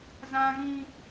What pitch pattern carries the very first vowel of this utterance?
high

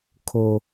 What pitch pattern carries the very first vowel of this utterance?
high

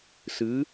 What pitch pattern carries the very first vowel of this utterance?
rising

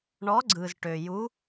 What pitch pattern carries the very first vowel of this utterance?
rising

